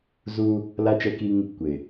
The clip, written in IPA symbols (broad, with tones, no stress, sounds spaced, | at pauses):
z u˦ | l a˦ t͡ʃ ɛ˦ k i˦ ŋ | kʷ ɪ˨